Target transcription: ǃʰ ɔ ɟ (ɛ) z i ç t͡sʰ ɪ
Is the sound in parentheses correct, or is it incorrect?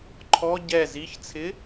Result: correct